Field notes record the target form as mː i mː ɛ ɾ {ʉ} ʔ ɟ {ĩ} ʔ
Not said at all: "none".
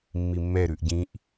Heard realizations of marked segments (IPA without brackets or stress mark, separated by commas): ʉ, ĩ